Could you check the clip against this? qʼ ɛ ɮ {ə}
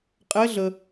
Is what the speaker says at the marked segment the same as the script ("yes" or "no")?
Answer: yes